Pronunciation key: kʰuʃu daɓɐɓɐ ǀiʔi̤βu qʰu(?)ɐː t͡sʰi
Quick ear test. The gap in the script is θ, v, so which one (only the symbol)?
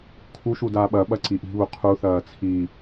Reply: θ